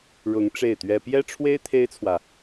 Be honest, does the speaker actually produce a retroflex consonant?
yes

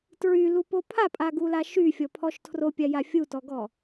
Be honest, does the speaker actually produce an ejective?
yes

